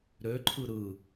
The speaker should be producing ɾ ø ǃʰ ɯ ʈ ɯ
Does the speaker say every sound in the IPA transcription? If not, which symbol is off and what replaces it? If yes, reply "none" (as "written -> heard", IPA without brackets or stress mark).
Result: ʈ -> ɾ